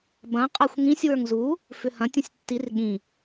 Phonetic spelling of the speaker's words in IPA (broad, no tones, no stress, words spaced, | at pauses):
bɐ̃ qʼaxʷŋĩsʲ wə˞ŋzu | fʏhɐ̃ tʲũsʲtːir ɠĩ